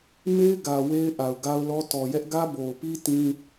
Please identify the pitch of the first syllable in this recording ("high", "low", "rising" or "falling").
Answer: high